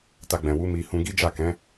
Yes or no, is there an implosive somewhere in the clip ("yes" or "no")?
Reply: no